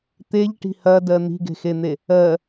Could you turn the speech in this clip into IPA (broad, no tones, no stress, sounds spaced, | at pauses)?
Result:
t̪ e ʎ ʈ i̤ h ɐ d ɜ n̪ i̤ ɡ e̤ x e n̪ e | ɜ